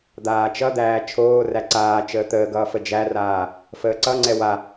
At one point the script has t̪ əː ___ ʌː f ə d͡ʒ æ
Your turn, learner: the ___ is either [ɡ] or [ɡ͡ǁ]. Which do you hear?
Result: ɡ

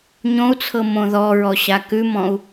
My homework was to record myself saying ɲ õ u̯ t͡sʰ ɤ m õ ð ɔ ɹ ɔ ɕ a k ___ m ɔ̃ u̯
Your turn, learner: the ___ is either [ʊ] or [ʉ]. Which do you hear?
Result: ʉ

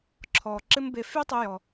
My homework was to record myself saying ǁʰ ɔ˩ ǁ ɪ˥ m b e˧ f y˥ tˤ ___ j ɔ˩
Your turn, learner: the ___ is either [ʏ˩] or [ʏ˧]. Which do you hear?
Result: ʏ˧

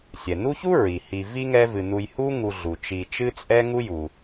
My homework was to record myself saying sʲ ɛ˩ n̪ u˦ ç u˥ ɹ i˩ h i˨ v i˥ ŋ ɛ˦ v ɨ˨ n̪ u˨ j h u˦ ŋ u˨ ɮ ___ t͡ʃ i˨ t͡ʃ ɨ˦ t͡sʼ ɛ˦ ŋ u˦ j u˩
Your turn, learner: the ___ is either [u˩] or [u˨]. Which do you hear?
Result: u˩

